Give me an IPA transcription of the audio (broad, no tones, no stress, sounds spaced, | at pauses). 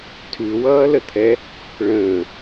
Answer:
tʰ ʉ w ʌː l ə t̪ʰ ɛ | ɭ ə̃ː